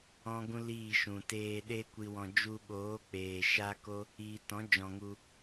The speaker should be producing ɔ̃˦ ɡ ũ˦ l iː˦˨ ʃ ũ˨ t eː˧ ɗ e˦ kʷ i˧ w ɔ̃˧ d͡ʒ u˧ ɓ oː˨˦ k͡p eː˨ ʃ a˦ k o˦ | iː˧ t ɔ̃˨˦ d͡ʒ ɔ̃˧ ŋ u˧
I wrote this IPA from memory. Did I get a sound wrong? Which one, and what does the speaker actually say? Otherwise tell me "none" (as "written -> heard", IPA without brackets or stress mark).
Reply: none